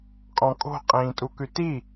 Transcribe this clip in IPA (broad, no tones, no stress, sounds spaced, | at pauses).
kʼ ɔ̃ kʼ o̤ qʼ ĩː tʼ u k ʉ t i